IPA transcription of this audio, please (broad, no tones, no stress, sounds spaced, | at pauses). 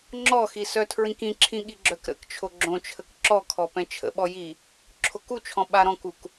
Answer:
ŋ͡ǁ ɔ x i s œ tʰ ɹ ĩ k ĩ ǁʰ ĩ ɠ i ɡ͡ǁ œ k ɾ ə̰ k t͡ʃʰ o ɡ͡ǁ õ t͡ʃʰ ə k ǁ ɔ kʰ ɔ p ɛ̃ t͡ʃʰ ə̰ ɓ ɔ j i | ǁʰ o k u t͡ʃʰ ɔ̃ ɓ a ɾ ɔ̃ k u k